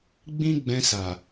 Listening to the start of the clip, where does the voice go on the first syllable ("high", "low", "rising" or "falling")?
high